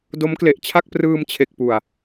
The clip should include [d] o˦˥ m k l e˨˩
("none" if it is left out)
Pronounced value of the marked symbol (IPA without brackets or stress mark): d